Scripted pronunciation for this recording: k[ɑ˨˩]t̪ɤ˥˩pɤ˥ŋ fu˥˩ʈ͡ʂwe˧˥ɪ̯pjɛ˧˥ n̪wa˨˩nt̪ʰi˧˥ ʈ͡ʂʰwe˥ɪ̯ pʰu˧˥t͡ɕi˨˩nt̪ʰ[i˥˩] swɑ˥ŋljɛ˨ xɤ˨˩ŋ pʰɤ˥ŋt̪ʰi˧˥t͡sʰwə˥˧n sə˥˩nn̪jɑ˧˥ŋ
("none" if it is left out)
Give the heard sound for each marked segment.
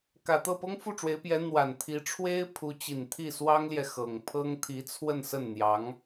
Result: ä˨˩, i˥˩

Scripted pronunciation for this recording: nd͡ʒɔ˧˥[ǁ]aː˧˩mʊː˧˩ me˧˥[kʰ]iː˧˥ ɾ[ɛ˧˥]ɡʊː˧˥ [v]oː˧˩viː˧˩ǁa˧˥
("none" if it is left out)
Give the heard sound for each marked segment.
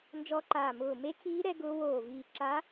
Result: ǃ, kʰ, ɛ˧˥, w

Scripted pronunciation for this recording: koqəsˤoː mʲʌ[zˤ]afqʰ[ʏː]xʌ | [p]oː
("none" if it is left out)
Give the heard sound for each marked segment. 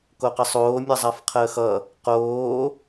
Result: zˤ, əː, q

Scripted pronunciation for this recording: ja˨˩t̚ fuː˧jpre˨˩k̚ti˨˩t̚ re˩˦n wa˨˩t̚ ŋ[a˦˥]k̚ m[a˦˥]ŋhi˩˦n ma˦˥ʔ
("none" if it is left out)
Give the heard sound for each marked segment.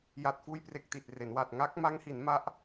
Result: a˦˥, a˦˥

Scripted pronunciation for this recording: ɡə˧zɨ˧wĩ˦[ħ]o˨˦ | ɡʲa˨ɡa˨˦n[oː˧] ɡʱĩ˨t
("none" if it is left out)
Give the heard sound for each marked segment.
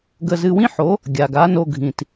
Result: ħ, o˧

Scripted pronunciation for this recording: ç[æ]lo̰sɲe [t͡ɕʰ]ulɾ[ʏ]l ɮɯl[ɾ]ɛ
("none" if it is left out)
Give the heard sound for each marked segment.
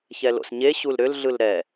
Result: ɛ, ɕ, ʏ, ɾ

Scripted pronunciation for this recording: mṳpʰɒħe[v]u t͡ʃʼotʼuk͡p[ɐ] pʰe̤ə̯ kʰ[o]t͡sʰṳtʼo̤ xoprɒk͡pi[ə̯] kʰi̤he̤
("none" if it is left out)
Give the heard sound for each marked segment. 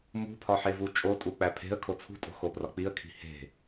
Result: v, æ, o, ə̯

